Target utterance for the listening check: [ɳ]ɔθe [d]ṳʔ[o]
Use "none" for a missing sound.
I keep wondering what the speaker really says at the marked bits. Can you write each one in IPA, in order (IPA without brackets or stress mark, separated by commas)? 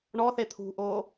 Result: ɳ, t̪ʰ, o